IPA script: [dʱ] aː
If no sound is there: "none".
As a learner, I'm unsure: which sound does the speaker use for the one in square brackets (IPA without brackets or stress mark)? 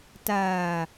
t